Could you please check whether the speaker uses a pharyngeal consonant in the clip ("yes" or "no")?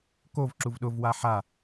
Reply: yes